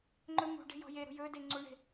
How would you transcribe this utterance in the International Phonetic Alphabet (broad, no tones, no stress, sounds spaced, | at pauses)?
ŋ͡ǃ ɵ m ṳ ɖ e̤ j ɔ̤ j e ɾ ṳ j ɵ d e ŋ͡ǀ u ɳ e̤